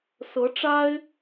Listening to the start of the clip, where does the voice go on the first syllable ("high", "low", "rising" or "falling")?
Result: rising